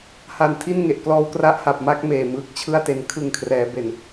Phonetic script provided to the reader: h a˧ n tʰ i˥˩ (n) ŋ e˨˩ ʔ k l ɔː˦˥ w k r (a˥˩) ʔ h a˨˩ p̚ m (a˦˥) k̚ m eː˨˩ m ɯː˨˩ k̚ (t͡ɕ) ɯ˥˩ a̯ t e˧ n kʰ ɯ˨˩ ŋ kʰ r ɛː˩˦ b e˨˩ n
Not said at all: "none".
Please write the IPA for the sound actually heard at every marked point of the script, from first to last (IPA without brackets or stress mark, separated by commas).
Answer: n, a˦˥, a˦˥, t͡ɕʰ